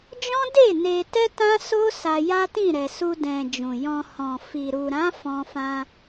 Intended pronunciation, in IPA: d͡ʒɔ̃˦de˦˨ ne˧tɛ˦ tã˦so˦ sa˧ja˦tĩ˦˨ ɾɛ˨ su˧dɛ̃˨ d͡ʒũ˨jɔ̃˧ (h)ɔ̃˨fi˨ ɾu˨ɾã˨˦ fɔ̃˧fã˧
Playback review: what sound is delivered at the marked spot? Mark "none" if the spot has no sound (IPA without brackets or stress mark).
h